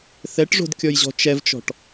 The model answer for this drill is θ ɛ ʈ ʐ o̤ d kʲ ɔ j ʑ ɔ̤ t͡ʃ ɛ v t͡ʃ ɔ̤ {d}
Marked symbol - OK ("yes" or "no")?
no